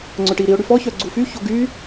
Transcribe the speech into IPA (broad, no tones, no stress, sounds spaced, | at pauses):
ŋ͡ǀ ɵ ʈ i ɾ i ʊ̯ ɽ y f ɔ ç œ ɡ͡ǀ u f y ç o ɡ y